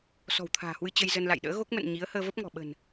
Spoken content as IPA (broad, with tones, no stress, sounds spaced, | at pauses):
s ɔ̤˨˩ w t̪ʰ a̤ː˨˩ h w ɨ˧ t͡ɕ ə˧ j z ə˧ n l a̰˧˨ j ɗ ə̰ː˧˥ ɣ o˦˥ k̚ m ə̰˧˨ n ɲ i˨˦ ə̯ h əː˧ v ə˦˥ p̚ ŋ ɔ̤˨˩ ɓ ə̤˨˩ n